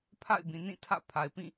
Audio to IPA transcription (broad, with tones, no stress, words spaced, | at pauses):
pʰa̰˦˨ɪ̯bĩ˨nĩ˦˨ tʰä̰˦˨pʰa˨ɪ̯pĩ˦˨